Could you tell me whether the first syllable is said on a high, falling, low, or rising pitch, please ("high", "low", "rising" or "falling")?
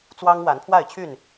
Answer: high